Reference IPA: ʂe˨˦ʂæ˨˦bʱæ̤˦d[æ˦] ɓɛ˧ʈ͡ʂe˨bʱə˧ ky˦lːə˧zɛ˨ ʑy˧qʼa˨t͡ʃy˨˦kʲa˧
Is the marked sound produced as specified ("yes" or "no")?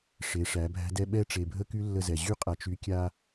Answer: no